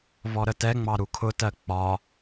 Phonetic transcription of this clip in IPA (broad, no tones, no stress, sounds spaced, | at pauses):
v ɔ ɾ ə t ɛ ŋ͡m ɑ ɾ u kʰ ʊ t ɜ k͡p ɒ